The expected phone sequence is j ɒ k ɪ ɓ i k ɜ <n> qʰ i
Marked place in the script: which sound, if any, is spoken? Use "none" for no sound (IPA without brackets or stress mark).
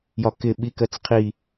t͡s